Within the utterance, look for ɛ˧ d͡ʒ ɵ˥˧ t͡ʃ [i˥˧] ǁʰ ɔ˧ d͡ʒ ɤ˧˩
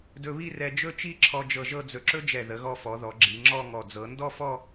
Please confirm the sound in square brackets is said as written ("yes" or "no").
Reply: yes